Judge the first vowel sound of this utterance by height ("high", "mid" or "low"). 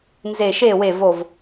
mid